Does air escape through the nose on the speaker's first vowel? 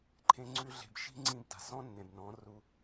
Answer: yes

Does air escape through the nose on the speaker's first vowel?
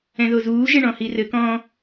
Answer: yes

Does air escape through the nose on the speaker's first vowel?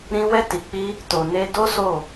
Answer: yes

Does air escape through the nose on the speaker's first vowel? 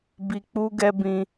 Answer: no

